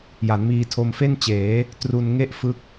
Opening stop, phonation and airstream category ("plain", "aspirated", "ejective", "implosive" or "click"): aspirated